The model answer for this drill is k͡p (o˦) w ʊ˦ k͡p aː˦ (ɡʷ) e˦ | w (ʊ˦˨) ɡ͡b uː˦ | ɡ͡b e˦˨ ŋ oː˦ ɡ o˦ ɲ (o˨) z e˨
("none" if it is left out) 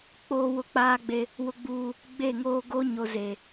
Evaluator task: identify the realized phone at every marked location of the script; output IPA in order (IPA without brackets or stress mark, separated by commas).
oː˦, ɡ͡b, ʊ˦, o˨